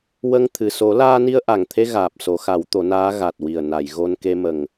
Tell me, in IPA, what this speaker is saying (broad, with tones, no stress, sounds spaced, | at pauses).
w ə˧ ŋ t̪ʰ ɨ˨˩ s o˨˩˦ l aː˧ n i˧ ə̯ ʔ a˨˩ ŋ t̪ʰ e˧ ɣ aː˨˩ p̚ s o˨˩˦ x a˨˩˦ w t̪ o˨˩˦ n aː˧˥ ɣ a˨˩ t̚ w i˨˩ ə̯ n a˨˩˨ j ɣ o˧ n k e˧ m ə˨˩ ŋ